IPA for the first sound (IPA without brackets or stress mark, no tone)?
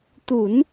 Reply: t̪